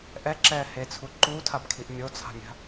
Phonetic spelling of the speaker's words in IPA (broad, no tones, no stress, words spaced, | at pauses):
ʔɛǁɛː het͡sʰu ǃuːtʰabkʰiʔ mʲot͡sʰa̤mʲa̤